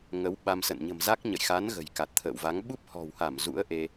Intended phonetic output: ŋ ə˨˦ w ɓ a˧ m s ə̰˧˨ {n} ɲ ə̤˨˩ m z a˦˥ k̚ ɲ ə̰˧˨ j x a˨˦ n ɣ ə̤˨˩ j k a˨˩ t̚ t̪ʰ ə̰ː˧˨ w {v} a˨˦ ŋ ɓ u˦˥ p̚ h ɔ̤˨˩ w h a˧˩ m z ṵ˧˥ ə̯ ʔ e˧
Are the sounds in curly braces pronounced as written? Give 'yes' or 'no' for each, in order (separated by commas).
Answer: yes, yes